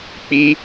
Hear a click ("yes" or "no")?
no